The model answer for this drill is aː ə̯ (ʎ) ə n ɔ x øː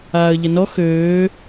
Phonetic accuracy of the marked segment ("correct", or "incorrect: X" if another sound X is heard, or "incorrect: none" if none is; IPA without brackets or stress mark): correct